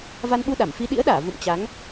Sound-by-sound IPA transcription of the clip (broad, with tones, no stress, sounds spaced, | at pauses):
v a˧ n ɓ u˧ ɗ a˧˩ m f i˧ ɗ ḭ˧˥ ə̯ ɗ aː˧˩ v ṵ˧˨ m t͡ɕ a˨˦ ŋ